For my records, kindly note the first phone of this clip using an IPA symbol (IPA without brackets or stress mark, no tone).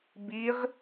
b